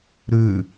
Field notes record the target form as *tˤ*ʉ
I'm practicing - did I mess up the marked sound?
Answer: yes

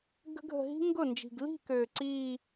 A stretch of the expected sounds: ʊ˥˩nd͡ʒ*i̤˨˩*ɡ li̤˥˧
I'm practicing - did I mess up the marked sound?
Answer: no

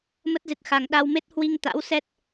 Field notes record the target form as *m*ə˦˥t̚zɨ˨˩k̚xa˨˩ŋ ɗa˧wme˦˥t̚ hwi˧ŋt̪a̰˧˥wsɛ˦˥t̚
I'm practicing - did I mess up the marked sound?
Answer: no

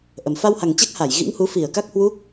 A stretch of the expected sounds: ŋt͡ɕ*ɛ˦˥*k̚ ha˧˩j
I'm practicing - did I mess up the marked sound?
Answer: no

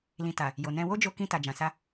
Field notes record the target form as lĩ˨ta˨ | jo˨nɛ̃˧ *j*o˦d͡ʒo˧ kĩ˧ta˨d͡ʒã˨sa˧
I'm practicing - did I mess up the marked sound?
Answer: yes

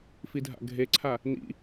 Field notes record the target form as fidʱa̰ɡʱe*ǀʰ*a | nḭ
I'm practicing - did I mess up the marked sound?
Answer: no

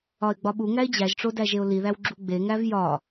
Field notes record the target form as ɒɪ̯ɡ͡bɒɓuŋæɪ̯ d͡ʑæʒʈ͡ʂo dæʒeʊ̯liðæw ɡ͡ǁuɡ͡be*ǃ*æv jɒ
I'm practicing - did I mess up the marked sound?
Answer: yes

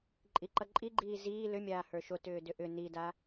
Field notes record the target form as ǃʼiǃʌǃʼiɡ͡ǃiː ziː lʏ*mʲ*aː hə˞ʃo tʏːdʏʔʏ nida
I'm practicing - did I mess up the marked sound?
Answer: no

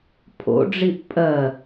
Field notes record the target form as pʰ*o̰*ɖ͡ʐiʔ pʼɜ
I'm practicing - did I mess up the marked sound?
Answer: no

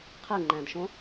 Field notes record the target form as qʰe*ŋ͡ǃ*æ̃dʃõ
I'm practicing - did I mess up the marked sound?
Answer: no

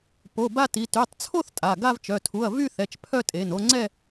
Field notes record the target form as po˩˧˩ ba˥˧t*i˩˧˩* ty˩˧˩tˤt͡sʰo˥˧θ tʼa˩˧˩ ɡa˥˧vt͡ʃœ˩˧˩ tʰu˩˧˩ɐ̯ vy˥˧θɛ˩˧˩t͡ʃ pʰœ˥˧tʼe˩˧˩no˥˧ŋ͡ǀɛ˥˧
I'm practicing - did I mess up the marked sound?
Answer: no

